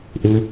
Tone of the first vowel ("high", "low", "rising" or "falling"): high